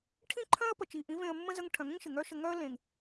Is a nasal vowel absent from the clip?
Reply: no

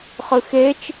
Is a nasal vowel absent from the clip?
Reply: yes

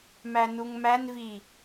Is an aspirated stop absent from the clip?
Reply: yes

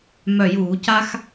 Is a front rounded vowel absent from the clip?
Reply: no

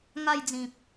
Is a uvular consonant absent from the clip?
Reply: yes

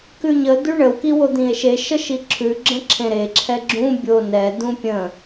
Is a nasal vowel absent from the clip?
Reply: no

